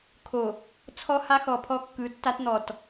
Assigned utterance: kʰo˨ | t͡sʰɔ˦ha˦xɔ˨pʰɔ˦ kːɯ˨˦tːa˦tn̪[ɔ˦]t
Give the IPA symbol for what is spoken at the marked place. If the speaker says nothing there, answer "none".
ɔ˨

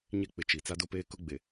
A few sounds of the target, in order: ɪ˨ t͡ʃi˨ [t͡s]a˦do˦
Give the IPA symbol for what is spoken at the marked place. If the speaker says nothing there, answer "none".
t͡s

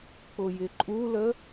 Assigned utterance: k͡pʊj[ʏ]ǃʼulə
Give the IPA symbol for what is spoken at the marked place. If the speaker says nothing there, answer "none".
ɪ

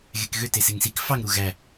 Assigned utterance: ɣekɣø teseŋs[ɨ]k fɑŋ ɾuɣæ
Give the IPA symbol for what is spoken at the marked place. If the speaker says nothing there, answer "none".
i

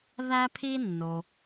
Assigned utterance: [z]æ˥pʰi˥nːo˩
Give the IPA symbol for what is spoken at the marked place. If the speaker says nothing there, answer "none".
ð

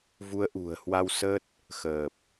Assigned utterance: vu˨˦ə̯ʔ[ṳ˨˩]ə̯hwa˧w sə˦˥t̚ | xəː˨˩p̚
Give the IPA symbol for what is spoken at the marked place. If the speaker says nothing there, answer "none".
ṳ˨˩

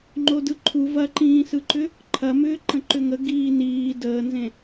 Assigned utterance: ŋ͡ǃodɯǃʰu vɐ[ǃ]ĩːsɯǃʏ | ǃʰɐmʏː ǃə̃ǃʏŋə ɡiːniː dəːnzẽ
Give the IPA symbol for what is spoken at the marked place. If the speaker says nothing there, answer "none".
ǃ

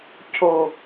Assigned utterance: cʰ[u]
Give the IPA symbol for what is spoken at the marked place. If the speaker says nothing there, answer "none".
o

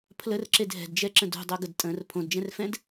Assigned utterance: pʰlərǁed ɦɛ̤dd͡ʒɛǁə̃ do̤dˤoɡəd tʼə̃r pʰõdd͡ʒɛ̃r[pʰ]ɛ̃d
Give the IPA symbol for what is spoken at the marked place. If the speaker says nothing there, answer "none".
f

